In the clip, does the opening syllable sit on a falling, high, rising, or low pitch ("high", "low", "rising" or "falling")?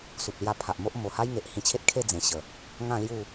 low